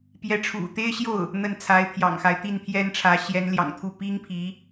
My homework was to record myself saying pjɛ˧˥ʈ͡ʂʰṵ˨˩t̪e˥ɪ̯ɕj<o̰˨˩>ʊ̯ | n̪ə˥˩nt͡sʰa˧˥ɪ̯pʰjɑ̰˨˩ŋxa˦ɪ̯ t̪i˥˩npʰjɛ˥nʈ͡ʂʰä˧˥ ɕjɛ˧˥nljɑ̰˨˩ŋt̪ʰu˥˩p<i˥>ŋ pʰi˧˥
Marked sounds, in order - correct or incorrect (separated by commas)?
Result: incorrect, correct